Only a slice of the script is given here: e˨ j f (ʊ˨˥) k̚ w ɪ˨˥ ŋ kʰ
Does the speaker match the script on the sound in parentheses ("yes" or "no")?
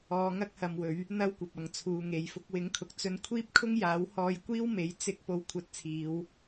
no